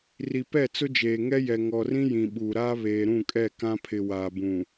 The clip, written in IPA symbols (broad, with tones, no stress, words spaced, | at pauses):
ri˨pɛ˦˨t͡sʊ˦d͡ʒeː˨ ŋɛ˦jɛ˨ ŋɔ˨rĩ˦ jĩ˨ɓuː˨ ɾaː˦βeː˨ ɾũ˦˨kʼɛ˦˨ kã˦pʰɪ˨ waː˨bũ˨